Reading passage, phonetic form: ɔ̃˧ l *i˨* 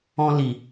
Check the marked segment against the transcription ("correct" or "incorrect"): correct